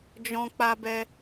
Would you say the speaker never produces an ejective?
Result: yes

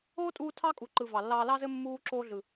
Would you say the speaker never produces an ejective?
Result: no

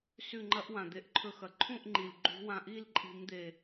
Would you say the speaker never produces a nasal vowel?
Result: no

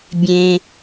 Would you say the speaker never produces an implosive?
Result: yes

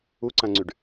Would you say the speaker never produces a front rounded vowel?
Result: no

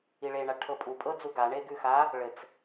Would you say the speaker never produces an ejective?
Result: no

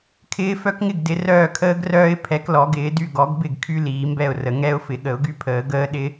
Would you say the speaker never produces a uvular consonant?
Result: yes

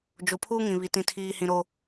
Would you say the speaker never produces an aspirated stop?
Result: no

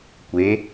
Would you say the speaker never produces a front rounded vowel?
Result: yes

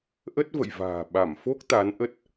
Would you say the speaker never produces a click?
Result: yes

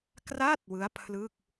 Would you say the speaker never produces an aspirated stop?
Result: no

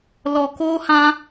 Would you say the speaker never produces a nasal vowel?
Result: no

